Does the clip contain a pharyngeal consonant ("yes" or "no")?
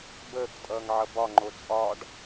yes